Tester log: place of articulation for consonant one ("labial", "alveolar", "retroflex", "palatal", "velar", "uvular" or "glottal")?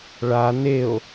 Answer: retroflex